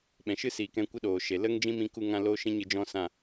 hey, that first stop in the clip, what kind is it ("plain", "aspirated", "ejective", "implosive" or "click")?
implosive